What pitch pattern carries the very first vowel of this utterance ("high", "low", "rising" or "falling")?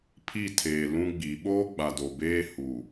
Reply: falling